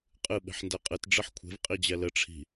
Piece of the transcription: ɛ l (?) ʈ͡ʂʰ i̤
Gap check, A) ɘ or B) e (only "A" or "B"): A